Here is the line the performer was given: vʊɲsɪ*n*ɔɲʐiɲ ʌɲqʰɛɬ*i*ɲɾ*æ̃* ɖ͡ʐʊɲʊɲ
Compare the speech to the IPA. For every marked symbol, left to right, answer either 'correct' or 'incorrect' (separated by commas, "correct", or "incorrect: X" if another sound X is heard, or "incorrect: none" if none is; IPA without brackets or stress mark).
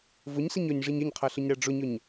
incorrect: ɲ, incorrect: ɪ, incorrect: æ